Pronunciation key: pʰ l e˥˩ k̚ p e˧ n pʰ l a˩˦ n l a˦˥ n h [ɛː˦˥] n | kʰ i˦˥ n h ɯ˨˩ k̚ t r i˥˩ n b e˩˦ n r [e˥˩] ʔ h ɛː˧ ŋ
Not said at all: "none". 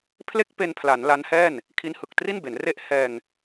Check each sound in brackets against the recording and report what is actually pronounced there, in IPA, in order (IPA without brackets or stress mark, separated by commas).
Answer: ɛː˥˩, e˥˩